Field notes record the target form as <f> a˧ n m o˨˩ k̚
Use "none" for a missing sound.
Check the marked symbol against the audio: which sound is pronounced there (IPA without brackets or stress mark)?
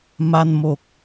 m